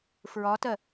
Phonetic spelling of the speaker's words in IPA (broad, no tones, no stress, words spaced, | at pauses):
fɹɒtɜ